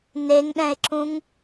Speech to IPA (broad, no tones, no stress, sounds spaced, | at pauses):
n e ŋ ɗ ɛ̃ e̯ ǁ ũ ŋ